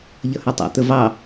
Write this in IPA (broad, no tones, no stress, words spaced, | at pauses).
ʎʌhɜtˤæ̰ t̪əvɑ